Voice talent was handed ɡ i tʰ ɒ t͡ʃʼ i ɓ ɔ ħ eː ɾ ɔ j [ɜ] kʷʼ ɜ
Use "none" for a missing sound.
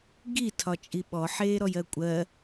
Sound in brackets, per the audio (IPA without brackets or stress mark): ɜ